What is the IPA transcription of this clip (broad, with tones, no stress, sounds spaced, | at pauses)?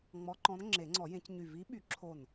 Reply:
ŋ͡m ɔ˧˥ ǃ ɔ̃˧˥ n ŋ͡ǁ e˨˩˦ ŋ͡ǀ ɔ˨˩˦ j ẽ˨˩˦ c ɲ y˧˩ v i˧˥ ɓ y˨˩˦ ǁʰ o˧˩ n